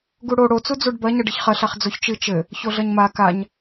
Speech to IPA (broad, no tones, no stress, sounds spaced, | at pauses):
ɡ u ɽ o ɽ o t͡s u d͡z u ɖ b ɐ ɲ ɐ ɖ ɨ ç χ ɐ ɬ a χ d͡z o ç t͡ʃ ɨ t͡ʃ ɘ | ç o ɮ ɐ ɲ m a k a ɲ